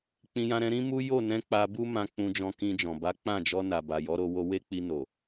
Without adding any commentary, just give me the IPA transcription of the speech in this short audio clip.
k͡p ĩ˧ j ã˧ ɾ ɛ̃˧ ɾ ĩ˦ m u˦ j o˦˨ n ɛ̃˧ k͡p a˧ b u˦ m ã˧ k͡p ũ˧ d͡ʒ ɔ̃˧ k ĩ˧ d͡ʒ ɔ̃˨ b a˨˦ k͡p ã˦˨ d͡ʒ ɔ˧ n a˨ b a˨ j ɔ˨˦ ɾ o˧ w o˧ w e˦ k͡p i˧ n o˨

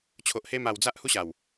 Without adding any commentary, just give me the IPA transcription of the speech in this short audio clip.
t͡ɕʰ o˨ ʔ h e˧ m a˨˩ w d͡z a˦ ʔ h u˦ ɕ a˨˩ w

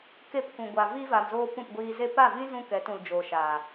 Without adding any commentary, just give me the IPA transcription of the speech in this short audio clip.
k e˧ p k ũ˨ ɡʷ a˨ v i˧ v a˨ m z oː˧ p ũ˦˨ p ɡʷ iː˧ z e˧ p a˦˨ v ĩ˦ z ũ˧ k ɛ˨˦ t ũ˨ l d͡ʒ oː˨ ʃ aː˨

